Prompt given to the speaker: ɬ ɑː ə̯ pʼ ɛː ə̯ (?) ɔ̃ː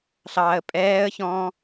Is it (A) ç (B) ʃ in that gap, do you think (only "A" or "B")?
A